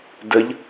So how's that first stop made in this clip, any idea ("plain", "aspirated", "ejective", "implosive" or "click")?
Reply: plain